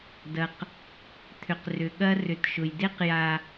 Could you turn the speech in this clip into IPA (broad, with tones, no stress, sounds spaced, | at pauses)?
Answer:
d ɐ˨ q | t̪ʰ ʏ˨ q r ʏ˨ ɠ ɐ˦ r ʏ˨ t ʃ ʊ˨ j d e˦ q j a˦